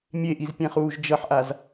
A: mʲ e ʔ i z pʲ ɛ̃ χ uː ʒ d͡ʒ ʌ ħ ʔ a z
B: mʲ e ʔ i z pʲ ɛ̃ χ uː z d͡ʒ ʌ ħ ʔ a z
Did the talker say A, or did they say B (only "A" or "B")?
A